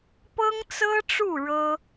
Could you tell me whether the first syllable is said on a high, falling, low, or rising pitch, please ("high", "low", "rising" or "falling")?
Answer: high